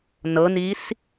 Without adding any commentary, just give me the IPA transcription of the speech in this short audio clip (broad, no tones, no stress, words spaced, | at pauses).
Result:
nɤnis